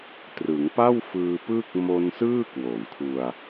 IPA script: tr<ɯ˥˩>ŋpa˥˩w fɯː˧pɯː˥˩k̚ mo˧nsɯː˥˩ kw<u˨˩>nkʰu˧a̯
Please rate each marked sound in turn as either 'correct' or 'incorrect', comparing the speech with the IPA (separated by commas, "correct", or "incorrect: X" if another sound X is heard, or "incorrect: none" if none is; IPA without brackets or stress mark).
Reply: incorrect: ɯ˩˦, incorrect: o˨˩